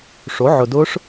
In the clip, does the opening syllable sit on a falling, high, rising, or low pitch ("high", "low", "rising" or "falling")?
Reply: rising